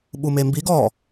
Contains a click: no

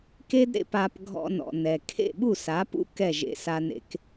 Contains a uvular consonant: no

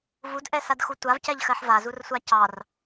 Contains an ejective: no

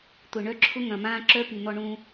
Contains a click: yes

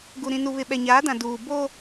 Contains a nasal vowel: yes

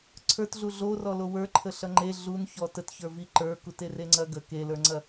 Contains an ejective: no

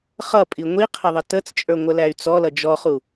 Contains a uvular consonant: yes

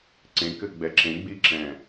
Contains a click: yes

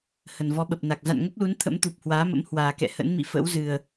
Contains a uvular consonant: no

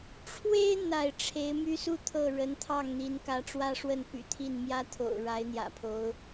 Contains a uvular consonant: no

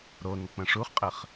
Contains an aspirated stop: no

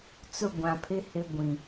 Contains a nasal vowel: yes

